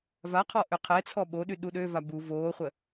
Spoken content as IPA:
v a qʰ ɔ ʔ ø qʰ ɛ t͡sʰ ɔ ɓ o ɗ y ɗ u ɗ ø v a b u v oː χʷ ə

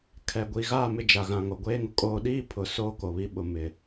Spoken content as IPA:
kʰ ɛ˨ ɡʷ i˨ ɣ aː˦˨ m ɪ˦˨ d͡ʒ a˨ ɣ ã˨ ŋ o˨ ɡʷ eː˦ ŋ ʊ˨ kʼ oː˦ ɗ iː˦ pʰ ʊ˨ s oː˦ k o˨ β i˦ ɓ ʊ˦ m ɪ˦

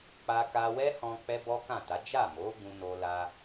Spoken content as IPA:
k͡p a˧ k a˧ w ɛ˦ h ɔ̃˧ k͡p ɛ˦ b ɔ˦ k ã˦˨ t a˨˦ d͡ʒ a˦˨ m o˨˦ ɡ ũ˧ n o˧ l a˧

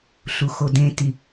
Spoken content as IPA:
ɬ u x o d ẽ t i

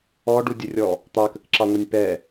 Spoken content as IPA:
ɔ ɖ u dʲ ə rʲ ɔ | t̪ ɑ k ə k ǁ ɑ ŋʷ ʌ nʲ p ɛ

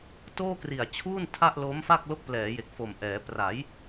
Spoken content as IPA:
t oː˥˩ k r i˨˩ a̯ t͡ɕʰ uː˥˩ n tʰ a˥˩ ʔ l oː˦˥ m f a˥˩ k̚ l o˦˥ k̚ p l ɛː˩˦ j e˨˩ k̚ f o˨˩ m ʔ ɛː˩˦ p r a˩˦ j

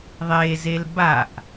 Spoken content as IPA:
ðˤ e z e l b a ʔ

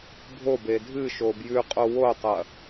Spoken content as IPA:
bʱ o b e dʱ ɨ ʃ o b j ʉ qʼ o w o tˤ ɐ

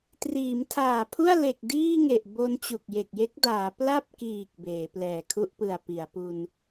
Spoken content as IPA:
t r iː˩˦ m tʰ aː˨˩ pʰ u˥˩ a̯ l e˨˩ k̚ d iː˥˩ ŋ e˨˩ ʔ b o˧ n t͡ɕ u˨˩ k̚ j e˨˩ k̚ j e˦˥ k̚ d aː˩˦ p l a˥˩ p̚ k iː˨˩ k̚ b eː˩˦ p l ɛː˨˩ kʰ u˥˩ ʔ p ɯ˨˩ a̯ p i˩˦ a̯ p u˧ n

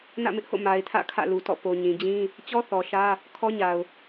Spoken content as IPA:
n ä̰˦˨ m ɪ˦ ʔ h o̰˦˨ m a˨ ɪ̯ tʰ ä̰˦˨ kʰ ä̰˦˨ l u˨ t ɔ̰˦˨ p o˨ ɲ ĩ˨ d͡ʑ ĩ˦ | t͡ɕ ɔ˦ θ ɔ˨ ʃ ä˦ | kʰ ɔ˦ ɲ a˨ ʊ̯

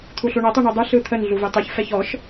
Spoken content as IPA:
t̪ʰ u ɬ u ɳ ɐ tˤ u ɳ ɯ dˤ ɯ ɬ ɯ t̪ʰ ə n ɮ u v e tˤ e ç f ɛ ç ɔ ʃ

